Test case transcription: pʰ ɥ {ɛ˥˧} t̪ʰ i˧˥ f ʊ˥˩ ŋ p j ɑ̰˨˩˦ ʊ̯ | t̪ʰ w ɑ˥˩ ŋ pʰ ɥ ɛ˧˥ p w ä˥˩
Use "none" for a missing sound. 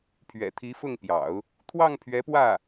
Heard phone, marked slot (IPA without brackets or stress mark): ɛ̰˨˩